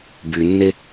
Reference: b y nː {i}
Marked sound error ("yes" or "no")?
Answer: yes